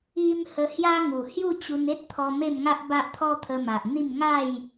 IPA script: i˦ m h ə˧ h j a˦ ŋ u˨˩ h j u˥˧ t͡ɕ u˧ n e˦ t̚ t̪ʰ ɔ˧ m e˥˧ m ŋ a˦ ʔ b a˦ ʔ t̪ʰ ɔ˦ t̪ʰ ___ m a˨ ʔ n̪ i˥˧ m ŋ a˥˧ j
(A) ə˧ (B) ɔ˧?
A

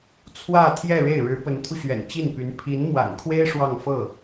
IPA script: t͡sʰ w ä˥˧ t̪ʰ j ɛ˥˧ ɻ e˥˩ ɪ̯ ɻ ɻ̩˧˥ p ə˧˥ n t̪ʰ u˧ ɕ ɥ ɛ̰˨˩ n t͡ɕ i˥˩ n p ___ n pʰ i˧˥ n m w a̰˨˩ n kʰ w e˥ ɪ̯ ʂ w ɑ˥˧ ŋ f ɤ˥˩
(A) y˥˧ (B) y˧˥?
B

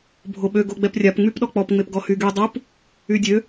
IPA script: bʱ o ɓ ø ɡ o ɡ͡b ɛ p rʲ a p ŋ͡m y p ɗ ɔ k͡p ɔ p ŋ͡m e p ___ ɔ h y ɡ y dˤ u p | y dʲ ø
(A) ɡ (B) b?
A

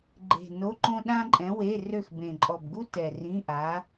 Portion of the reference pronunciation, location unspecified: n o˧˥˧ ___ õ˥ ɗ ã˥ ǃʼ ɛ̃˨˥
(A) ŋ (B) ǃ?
B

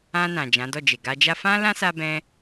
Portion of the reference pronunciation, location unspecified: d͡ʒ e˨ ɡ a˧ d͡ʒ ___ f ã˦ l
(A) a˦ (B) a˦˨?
A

